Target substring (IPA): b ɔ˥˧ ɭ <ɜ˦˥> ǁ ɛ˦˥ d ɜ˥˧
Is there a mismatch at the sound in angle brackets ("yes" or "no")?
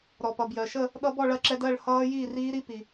yes